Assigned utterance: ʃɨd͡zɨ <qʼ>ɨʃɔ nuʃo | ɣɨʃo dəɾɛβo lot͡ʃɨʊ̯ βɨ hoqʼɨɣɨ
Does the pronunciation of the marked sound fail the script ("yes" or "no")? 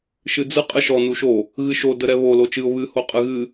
no